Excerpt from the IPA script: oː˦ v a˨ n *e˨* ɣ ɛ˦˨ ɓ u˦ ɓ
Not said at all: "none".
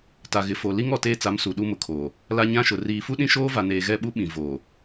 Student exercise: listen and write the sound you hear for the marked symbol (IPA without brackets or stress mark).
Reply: eː˨